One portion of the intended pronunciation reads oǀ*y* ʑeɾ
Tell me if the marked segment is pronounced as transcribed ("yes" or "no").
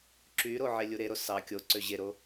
no